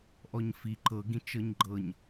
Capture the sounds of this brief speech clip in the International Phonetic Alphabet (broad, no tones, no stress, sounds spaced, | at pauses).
ʔ ɔ ɲ f i ǃ ɤ ɡ ĩ t͡ʃ ɤ ɲ ɡ͡ǃ ɤ ɲ